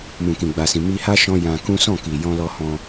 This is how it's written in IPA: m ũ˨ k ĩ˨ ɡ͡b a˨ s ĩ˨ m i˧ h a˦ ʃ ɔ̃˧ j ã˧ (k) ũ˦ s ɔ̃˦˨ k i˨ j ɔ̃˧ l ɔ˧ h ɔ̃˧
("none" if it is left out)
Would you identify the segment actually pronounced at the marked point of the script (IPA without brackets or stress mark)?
k